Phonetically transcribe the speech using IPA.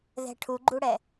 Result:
ð ɛ̤ ʈʰ u ɡ͡ǃ u ɽ ɛ

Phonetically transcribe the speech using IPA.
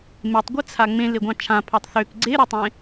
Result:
m e tˤ ɡʷ e t͡sʰ a ŋ͡m ẽ l e ɡʷ ɑ̃ t͡ʃʰ ã pʰ ɑ tˤ θ ø k ɡ͡ǀ e ɾ u tˤ ẽ

